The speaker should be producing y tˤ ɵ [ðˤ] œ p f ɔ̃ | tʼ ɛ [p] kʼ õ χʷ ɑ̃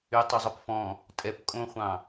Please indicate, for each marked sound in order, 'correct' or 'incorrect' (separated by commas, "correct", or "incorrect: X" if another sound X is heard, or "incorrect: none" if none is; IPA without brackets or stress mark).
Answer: incorrect: zˤ, correct